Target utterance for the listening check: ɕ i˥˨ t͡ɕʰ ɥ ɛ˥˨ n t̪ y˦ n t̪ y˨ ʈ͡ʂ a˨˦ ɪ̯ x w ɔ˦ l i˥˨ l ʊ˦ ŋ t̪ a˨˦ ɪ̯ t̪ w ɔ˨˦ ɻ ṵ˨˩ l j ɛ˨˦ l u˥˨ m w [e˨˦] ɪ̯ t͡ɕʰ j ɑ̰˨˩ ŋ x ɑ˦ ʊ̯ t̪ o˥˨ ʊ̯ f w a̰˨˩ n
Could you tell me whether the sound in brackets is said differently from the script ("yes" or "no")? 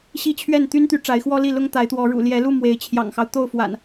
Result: no